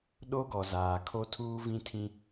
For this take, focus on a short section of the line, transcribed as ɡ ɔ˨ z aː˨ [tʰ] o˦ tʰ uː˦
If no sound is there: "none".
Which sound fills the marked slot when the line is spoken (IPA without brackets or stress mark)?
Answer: kʰ